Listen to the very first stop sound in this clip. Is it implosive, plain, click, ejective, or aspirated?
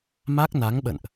plain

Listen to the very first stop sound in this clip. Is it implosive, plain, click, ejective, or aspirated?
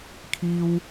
aspirated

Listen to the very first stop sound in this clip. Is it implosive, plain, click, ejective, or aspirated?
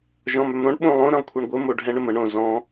implosive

